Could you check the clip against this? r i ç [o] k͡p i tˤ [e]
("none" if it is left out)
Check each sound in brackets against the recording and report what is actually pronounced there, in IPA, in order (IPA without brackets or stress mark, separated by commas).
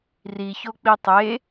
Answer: o, e